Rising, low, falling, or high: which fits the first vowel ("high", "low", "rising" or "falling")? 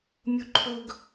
high